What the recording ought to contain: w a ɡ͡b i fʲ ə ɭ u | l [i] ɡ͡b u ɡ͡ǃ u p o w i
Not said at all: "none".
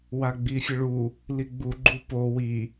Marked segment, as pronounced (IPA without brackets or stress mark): i